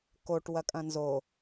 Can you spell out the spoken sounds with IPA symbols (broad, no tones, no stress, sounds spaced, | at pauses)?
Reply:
k o ʈ w ɐ kʼ ɐ̃ n z o